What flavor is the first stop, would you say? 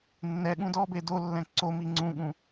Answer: implosive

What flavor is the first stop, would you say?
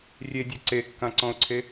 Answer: plain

